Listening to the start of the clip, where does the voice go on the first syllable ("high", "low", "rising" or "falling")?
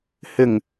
low